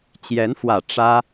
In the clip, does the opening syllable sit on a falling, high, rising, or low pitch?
rising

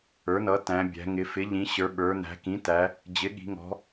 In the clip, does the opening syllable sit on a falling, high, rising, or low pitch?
rising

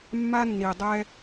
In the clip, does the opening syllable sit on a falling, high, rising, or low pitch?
high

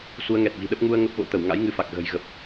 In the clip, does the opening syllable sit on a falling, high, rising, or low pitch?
rising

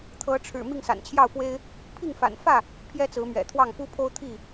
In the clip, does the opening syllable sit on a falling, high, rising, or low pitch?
rising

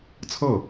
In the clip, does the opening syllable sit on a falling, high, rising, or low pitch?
falling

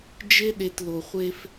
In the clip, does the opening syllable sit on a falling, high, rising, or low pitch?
high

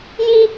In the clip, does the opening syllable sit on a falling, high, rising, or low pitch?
high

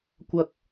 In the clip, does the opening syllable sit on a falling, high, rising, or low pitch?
high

